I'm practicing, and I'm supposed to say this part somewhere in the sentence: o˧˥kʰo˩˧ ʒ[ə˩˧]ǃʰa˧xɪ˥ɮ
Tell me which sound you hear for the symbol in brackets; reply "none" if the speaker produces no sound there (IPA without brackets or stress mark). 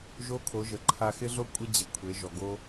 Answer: ə˩˧